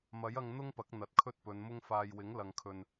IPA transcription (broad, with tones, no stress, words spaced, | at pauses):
mɐ˨˥jɐ˧ŋ n̪ʊ˥ŋpɐ˨˥k̚ n̪ɐ˨t̚kʰɵ˥t̚pɵ˨˧nmʊ˥ŋ faː˨jwɪ˨˥ŋ lɐ˨ŋkʰɵ˨n